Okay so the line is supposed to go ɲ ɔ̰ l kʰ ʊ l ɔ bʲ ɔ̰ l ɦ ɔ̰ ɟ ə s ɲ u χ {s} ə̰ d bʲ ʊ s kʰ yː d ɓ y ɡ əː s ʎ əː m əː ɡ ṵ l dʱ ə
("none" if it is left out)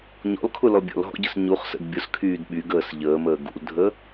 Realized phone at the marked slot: s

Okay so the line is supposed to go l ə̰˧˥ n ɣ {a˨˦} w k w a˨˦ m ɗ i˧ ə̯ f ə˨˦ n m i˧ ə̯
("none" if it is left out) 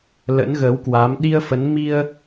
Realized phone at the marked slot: ə˨˦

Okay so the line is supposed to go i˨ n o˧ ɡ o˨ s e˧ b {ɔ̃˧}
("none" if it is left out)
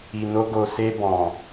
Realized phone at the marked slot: ɔ̃˨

